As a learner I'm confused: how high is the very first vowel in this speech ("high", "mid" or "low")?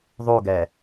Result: high